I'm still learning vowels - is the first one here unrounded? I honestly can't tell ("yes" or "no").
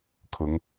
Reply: no